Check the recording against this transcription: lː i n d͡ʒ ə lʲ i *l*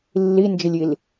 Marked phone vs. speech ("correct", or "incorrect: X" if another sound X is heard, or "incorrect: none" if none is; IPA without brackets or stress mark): correct